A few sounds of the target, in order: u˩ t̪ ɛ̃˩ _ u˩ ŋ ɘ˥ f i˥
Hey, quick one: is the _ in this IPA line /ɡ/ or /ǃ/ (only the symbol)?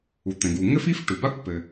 ɡ